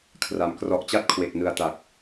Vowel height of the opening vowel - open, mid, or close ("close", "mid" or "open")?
open